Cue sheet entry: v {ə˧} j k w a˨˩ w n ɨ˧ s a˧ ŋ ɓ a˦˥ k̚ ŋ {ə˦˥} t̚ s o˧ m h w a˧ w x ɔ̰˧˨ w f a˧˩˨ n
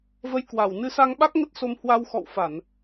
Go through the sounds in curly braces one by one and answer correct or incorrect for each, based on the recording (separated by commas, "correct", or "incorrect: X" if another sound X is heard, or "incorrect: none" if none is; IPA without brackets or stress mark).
correct, correct